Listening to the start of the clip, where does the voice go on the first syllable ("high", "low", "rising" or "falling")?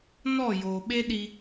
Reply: falling